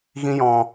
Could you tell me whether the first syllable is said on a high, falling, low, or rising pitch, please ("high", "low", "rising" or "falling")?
high